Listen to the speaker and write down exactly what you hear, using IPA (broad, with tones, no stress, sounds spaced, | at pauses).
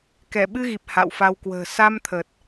k ɛ˧˩ ɓ ɨ˧ ɣ i˨˩ p̚ h a̰˧˨ w f a˧ w k w ə̤ː˨˩ s a˧ m t̪ʰ ə˨˩ t̚